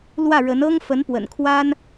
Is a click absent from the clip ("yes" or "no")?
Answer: yes